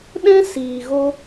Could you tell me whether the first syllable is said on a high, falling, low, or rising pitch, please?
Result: high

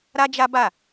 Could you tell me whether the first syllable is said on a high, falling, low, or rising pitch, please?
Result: high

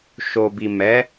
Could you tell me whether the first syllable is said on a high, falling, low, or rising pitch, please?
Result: low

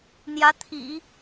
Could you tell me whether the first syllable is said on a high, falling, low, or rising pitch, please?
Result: rising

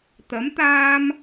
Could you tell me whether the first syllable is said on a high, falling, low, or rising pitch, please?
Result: rising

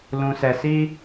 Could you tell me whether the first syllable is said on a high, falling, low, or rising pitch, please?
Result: low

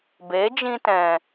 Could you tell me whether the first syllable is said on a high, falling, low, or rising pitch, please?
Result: rising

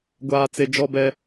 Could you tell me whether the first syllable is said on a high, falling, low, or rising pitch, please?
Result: low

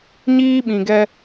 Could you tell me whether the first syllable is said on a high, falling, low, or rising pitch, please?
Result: high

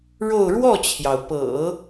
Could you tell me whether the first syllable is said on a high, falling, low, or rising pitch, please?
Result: falling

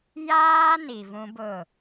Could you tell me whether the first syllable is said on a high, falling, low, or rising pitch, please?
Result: high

